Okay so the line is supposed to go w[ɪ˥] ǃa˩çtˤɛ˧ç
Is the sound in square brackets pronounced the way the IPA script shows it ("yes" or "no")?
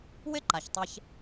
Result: yes